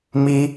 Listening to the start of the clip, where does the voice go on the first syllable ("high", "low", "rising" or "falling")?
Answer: high